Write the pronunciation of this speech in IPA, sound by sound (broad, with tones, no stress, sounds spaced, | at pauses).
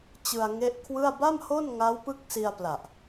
t͡ɕ ɯ˧ a̯ ŋ e˦˥ ʔ kʰ w ɯ˥˩ a̯ b a˥˩ m h o˥˩ n ŋ a˦˥ w p ɯ˦˥ k̚ s i˧ a̯ p l a˨˩ ʔ